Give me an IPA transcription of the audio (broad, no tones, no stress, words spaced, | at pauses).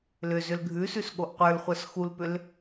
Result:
lʏzʏl ɡʱʉsʉs ɠoʔqʷə˞lχʷə˞s xulpʏl